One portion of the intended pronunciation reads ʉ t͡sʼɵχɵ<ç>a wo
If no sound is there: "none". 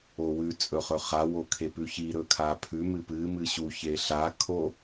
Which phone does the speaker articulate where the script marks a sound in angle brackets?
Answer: χ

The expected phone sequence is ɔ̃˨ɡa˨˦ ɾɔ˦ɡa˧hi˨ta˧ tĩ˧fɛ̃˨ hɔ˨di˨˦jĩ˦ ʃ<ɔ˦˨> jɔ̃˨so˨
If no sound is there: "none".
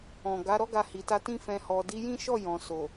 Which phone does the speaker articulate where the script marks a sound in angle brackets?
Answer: ɔ˦˨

